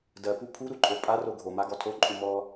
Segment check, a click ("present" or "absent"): present